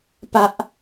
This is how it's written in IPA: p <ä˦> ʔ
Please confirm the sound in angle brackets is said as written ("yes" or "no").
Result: yes